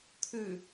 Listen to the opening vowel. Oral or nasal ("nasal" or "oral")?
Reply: oral